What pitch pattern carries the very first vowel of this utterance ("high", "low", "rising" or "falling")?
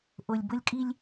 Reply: low